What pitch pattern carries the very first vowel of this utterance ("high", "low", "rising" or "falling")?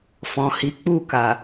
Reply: low